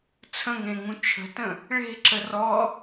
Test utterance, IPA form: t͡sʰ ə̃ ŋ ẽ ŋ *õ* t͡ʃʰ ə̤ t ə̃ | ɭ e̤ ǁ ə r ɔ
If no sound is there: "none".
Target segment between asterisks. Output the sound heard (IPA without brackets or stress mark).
ũ